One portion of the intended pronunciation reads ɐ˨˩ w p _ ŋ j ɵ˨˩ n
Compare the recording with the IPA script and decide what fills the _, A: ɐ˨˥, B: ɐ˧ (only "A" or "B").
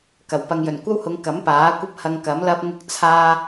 B